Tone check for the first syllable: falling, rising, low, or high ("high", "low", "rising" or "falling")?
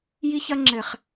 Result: high